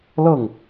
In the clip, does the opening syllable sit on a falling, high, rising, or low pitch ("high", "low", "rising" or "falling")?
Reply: falling